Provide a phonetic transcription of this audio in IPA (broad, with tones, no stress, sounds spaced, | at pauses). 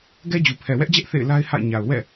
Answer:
ɡ ɛ˦ d͡ʑ u˨ pʰ ɛ˨ w ɛ˦ ʔ d͡ʑ ɛ˦ ʔ θ ḛ˦˨ ɪ̯ l a˦ ɪ̯ h a̰˦˨ ɪ̯ ɲ a˨ ʊ̯ w ɛ̰˦˨